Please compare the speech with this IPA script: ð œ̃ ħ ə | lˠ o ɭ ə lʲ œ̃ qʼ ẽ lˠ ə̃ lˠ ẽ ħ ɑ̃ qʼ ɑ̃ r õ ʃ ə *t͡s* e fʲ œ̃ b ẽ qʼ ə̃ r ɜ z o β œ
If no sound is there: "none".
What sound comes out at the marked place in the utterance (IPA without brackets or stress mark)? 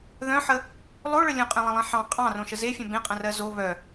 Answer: z